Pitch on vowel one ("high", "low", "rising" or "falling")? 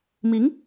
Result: rising